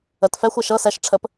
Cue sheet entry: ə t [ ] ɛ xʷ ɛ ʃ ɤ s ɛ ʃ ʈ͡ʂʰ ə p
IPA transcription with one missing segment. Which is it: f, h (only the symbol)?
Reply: f